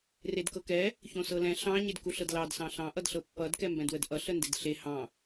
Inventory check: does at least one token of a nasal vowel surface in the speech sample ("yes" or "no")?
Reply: yes